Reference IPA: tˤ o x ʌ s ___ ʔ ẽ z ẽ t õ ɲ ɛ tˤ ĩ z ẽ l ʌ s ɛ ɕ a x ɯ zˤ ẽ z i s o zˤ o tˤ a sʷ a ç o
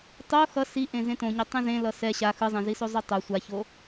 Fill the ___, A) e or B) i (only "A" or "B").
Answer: B